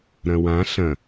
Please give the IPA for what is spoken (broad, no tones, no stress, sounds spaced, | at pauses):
ɾ ɐ̃ w ã ɬ ɐ̃